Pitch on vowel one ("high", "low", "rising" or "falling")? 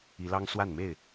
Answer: rising